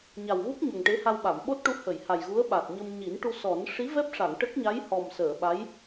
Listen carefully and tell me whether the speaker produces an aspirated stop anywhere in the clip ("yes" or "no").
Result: no